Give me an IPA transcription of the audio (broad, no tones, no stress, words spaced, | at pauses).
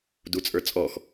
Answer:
dut͡sʼə˞t͡sʼɔx